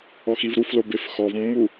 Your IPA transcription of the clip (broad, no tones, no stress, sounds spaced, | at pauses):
ɔ x i v ɾ u f l o b e f x ɔ v mː u